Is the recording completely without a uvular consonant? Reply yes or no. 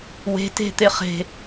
no